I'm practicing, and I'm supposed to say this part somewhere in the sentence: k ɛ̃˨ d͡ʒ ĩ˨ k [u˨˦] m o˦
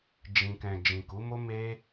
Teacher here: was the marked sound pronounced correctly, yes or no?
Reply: yes